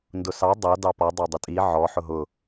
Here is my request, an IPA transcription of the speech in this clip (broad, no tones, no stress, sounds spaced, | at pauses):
n d ʊ s ɑ dˤ ʌ d ɑ p ɔ dˤ ɑ dˤ ʊ tʼ i ʕ ɔ ħ ʊ ɦ ʊ